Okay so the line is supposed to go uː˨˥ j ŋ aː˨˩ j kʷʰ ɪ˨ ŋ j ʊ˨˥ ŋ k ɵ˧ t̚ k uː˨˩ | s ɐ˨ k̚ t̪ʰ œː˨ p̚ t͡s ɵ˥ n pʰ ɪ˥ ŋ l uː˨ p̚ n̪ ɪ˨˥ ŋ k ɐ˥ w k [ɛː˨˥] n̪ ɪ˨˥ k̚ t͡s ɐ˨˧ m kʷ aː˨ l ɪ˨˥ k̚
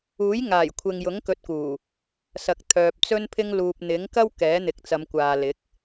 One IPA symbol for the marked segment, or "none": ɛː˨˥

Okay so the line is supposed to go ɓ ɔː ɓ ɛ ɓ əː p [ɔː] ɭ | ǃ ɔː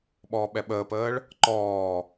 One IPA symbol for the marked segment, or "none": əː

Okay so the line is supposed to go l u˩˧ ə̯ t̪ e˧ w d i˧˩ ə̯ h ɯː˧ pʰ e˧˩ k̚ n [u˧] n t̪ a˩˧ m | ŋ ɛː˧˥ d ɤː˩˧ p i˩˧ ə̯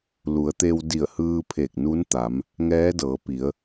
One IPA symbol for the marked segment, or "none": u˧˥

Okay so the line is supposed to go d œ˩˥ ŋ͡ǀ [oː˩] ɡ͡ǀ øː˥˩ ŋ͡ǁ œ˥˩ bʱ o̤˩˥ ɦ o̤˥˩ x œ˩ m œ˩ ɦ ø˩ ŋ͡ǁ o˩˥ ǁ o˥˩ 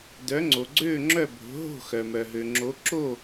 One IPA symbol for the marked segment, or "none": o˩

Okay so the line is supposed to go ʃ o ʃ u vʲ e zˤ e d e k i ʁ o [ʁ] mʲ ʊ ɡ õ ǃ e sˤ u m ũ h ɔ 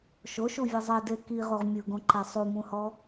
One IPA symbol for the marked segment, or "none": ʁ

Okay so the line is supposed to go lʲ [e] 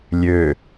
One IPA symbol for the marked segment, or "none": ø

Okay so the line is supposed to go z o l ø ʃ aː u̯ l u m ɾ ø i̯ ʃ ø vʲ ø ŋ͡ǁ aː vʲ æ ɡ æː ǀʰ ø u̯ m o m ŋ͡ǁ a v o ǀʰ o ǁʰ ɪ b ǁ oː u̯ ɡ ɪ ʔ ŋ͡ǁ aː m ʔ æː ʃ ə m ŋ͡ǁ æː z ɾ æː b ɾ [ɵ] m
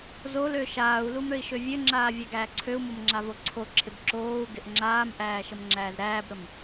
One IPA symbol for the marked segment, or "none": ə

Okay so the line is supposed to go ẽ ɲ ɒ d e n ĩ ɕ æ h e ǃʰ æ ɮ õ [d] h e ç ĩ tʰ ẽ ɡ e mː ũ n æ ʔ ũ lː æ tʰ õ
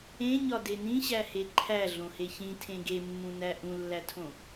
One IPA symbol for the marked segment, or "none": none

